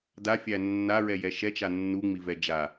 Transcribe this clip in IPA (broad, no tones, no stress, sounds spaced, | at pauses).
d a fʲ æ nː a ɹ ɛ j ɛ ʃ ɛ t͡ʃ a nː u ŋ͡m i v ɛ d͡ʒ a